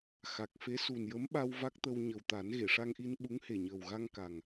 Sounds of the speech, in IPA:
x a˨˩ k̚ f e˧˥ s u˨˩ n j ə˧˥ m ɓ a˧ w v a˦˥ k̚ t̪ ə˧ w ɲ ə˨˩ w t̪ a˨˩˦ n ɣ e˨˩˨ ʂ a˧ ŋ ʔ i˧ n ɓ u˧˥ ŋ h e˨˩ ɲ əː˨˩ w ɣ a˧ ŋ k a˨˩ ŋ

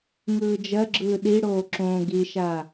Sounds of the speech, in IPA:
ŋ ɯː d͡ʒ ɜ ɡ͡ǁ ɯː ɗ i ɽ oː ǁ õː ɡ i ʃ a

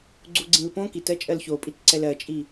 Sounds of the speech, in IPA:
ɡ͡ǀ u ɡ͡ǀ ĩ l p õ k i t ɜ t͡ʃʼ ɜ l ç o pʼ i t ǀ ɛ l ɜ t͡ʃʼ i

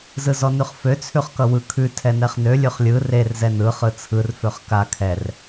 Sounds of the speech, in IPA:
z ɯ z ɔ n ʉ χ f ø t͡sʰ ʉ χ k ʌ w ɯ kʰ ʉ tʰ ɛ n ɛ χ n ø lʲ ʉ χ lʲ ɯ r e r z ɛ n ɯ χ ɯ t͡sʰ ɯ r f ø χ k a kʰ ɛ r

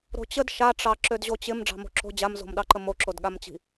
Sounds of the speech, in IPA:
ɾ o̤ t͡ɕ ə d ʃ a ʈ͡ʂ ɑ ǁ ø d ʑ o t͡ɕ ɪ m ɖ͡ʐ ɑ̤ m o̤ ǁ o̤ d͡ʑ a m z o̤ m ɗ ɑ ǃ ə m o ǁ o d ɠ a m t͡ɕ i̤

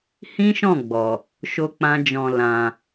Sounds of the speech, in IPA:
h ĩ˦ ʃ ɔ̃˦˨ ɡ͡b ɔ˨ | ʃ o˦ k͡p ã˦ d͡ʒ ɔ̃˧ l ã˧

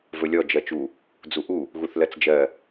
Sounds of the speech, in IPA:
v ɵ lʲ ɔ d͡ʒ ɜ t͡ʃ u | d͡z u ʔ u | ɣ u θ l ɜ t͡s d͡ʒ ɜ

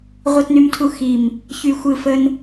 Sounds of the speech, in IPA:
ʁʷ ɯ˧ t n y˧ m tʰ u˧ x i˧˩ m | ç y˧ xʷ ɯ˧ f ə˧ n

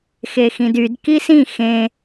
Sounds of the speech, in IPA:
x e x ĩ d y d k i s ĩ x ẽ

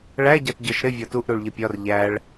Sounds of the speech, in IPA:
ɭ æ ɟ ɑ t ɟ ɒ ʃ ɾ ɪ vʲ ɒ t u ʔ ɾ u ɭ ʎ ɪ pʲ ɒ r ʎ æ ɭ

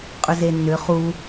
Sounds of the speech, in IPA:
qʼ ʏ z e nː ʏ χ u

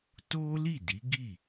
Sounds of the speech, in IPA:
t o˦ l i˦˨ d i˨˦ ɡ i˦˨

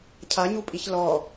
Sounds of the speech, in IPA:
cʰ a ɲ u pʼ i ç l ɔ

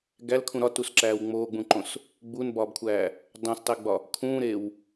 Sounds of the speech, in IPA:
ɡ æ l kʰ ũ ɾ ɒ t u s ǁ æː w ŋ͡m oː ɡ͡b ũ ǃ õ s | ɡ͡b u n b ɒː b kʷʰ æː | dˤ ũ s tˤ e ɡ͡b ɒ | kʰ ũː ɾ e w

